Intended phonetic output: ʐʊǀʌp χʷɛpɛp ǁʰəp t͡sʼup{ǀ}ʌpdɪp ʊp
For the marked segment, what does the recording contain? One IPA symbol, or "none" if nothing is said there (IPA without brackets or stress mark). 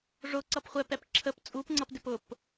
ŋ͡ǀ